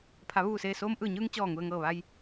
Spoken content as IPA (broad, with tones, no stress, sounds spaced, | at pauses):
pʰ a˩˧ ʋ uː˧˩ s eː˧˩ s oː˧ m ʔ ɯː˧˩ ɲ ɯː˧ ŋ t͡ɕ ɔː˧˩ ŋ u˩ ə̯ ŋ ɤː˧˩ ʋ a˧ j